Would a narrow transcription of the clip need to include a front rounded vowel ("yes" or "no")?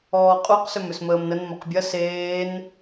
yes